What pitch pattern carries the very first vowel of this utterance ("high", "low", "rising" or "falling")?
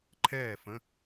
falling